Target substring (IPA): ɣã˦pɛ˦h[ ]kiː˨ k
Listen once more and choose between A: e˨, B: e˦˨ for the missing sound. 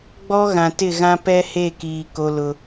B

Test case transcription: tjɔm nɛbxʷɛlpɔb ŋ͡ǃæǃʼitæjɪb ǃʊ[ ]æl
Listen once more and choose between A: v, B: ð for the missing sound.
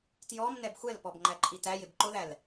B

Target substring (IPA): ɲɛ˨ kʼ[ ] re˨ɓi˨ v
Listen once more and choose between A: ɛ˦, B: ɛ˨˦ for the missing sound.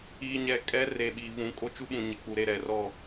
A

